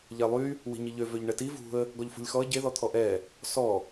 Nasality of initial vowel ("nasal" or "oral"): oral